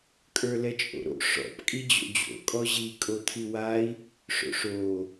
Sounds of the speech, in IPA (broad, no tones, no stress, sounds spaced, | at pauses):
kʼ ə˞ l ɛ t͡ʃʼ o̰ ɾ o̰ ʂ ɔ̰ p kʼ i d͡ʑ o̰ d͡ʑ o̰ kʼ ɔ ʑ i kʼ o t̪ʰ i w a i̯ | ʂ o̰ ʂ o